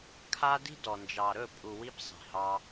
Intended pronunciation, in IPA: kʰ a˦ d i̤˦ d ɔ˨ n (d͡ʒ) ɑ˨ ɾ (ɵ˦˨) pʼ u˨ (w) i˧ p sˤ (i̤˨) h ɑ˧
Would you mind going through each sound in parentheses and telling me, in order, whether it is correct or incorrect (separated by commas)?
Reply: correct, correct, correct, correct